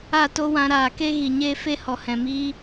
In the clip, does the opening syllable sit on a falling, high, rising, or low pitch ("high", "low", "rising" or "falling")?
falling